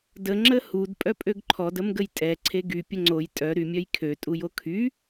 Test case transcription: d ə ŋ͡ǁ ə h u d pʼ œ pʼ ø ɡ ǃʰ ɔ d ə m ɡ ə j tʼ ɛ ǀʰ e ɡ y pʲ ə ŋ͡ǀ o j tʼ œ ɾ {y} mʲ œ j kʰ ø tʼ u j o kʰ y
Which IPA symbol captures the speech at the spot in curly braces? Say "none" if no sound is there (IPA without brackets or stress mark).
y